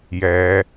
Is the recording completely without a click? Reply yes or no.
yes